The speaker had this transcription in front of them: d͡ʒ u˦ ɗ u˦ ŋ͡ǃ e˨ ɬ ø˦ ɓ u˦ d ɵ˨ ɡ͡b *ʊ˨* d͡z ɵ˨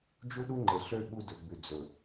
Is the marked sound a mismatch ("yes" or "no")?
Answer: yes